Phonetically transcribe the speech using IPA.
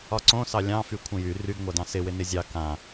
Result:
ɒ ǀ õ s ɑ lʲ ɑ̃ f y kʷʰ ə̃ j y r y ɡ ŋʷ a d ɑ̃ s ɪ w ɪ n ɪ zʲ ɑ k ã

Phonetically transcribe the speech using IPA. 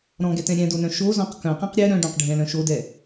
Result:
ɾ ɔ̃ ɡ ɛ t ɛ̃ ɾʲ ɛ̃ d o n œ̃ ʃ o z ɔ̃ q k œ̃ q ɛ̃ q ɾʲ ɛ ɾ œ̃ ɖ œ̃ q ɖʱ ɛ̃ l œ̃ ʃ o d ɛ

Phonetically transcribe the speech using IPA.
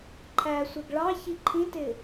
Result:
ǃʰ æ sʷ ɛ ɡ ɭ ɑ ç i ǃʰ ĩ t ɪ

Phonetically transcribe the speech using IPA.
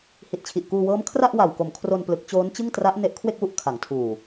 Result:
h i˨˩ t̚ t͡ɕʰ i˨˩ ʔ k uː˧ w ɤː˦˥ m kʰ r a˥˩ ʔ w a˨˩ w k o˨˩ m kʰ r o˧ n p l ɯ˦˥ k̚ t͡ɕ oː˦˥ n t͡ɕ ɯ˥˩ ŋ t r a˦˥ ʔ n e˦˥ ʔ kʰ w e˥˩ k̚ w u˥˩ ʔ kʰ a˩˦ ŋ tʰ uː˨˩

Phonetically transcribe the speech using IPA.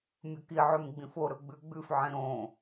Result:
mʲ ɵ k i ʕ ʉ m ɡ͡b ĩ f o ɾ ɵ ɡ͡b ʉ ɡ͡b ʉ f ʕ ĩ ɾ õ

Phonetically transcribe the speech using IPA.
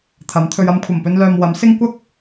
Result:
t̪ʰ ɐ˨˥ m t̪ʰ ɵ˧ ɥ ɐ˧ m kʷʰ ɐ˨˩ m p ɵ˧ n l œː˨ m w ɐ˨˥ m s ɪ˥ ŋ kʷ ɐ˥ k̚

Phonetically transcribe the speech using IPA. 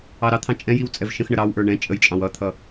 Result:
ɑ ɾ ɑ t̪ʰ ɑ̃ t͡ʃʼ ɛ̃ j i w t͡sʼ ɛ v ʃ ə̃ x ɳ ə ɾ ɑ w ʔ ə˞ ɳ ɛ̃ t͡ʃʼ ə j t͡ʃʼ ɑ̃ w ʌ t̪ʰ ʌ

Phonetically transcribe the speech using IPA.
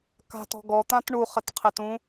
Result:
k a̤ t ɔ̤ ɡ ɔ t̪ ã t ɳ u χ ɘ t qʰ e t ũ

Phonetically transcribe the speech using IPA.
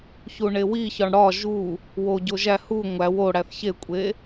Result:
ç u ɳ e w i ç ɒ ɳ ɽ ɒ ʒ u | w o ɟ o ʒ æ h u ŋʷ æ w o ɽ æ θ ç e kʷʼ e

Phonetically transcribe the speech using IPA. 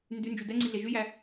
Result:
n d y n d͡ʒ y d ɛ ŋ͡ǀ i ɮ e ʒ y j æ

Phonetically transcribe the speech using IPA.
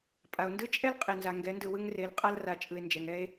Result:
pʼ a˨ o̯ n d ɯ˦ t͡ʃʼ ɛ˦ l qʼ e˨ n z a˨ ŋ ɡ ɛ˨˦ n d ɯ˨ w ɯ˦ ŋ r e˨˦ l qʼ a˦ l r a˨ t͡ʃʼ ɯ˨ e̯ n d͡ʒ ɛ˨ ŋ ɛ˦ e̯

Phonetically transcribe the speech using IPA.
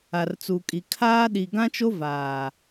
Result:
a˨ r t͡s u˨ kʼ i˨ kʰ aː˦ ɗ i˨ ɡ ã˦ t͡ʃ o˦ v aː˨

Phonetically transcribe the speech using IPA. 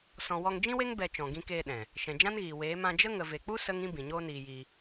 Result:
s ɔ̃˨ w ɔ˧ ŋ d͡ʒ ĩ˦ w e˦ ŋ b ɛ˧ t͡ʃ ɔ̃˨ ɡ ĩ˧ k eː˧ ɗ ɛ̃˨ | ʃ ɛ̃˨ d͡ʒ ã˦ n ɣ iː˨ w eː˨˦ m ã˧ d͡ʒ ə˦ ŋ ə˨ v e˨ k͡p u˦ s ə˦ ŋ ĩ˦ b ĩ˨ ɲ oː˦ n iː˧ j iː˧

